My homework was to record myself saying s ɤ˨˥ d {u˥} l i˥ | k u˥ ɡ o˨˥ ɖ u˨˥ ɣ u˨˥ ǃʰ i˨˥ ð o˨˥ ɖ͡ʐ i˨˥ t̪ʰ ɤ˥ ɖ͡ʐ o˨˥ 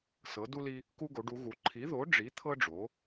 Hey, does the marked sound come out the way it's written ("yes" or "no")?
yes